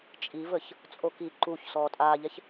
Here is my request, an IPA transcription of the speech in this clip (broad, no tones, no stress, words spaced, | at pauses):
t͡ʃʼivəç | t͡sʼoki ǃuç sɔːtʼaːʎɛç